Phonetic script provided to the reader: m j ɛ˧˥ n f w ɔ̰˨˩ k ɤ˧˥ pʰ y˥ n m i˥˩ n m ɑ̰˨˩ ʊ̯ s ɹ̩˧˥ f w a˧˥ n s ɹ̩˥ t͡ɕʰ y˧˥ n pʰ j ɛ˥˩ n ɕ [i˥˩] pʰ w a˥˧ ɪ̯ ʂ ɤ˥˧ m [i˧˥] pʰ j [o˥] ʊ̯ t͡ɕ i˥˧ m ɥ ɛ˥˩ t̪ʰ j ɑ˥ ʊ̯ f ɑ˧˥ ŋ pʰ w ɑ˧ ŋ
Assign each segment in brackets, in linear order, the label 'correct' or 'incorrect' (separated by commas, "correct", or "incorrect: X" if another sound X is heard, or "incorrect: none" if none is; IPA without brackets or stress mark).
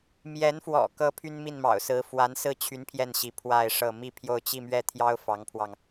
incorrect: i˧˥, incorrect: i˥˧, incorrect: o˥˧